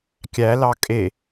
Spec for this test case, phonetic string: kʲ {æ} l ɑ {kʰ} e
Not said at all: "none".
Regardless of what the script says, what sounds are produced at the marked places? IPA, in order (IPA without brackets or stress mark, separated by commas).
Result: æ, kʼ